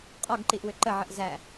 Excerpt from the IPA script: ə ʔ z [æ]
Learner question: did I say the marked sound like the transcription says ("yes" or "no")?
yes